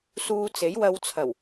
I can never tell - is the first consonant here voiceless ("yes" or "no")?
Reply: yes